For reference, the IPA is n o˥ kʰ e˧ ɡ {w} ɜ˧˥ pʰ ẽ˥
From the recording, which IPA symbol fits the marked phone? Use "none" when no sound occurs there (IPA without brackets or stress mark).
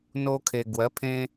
w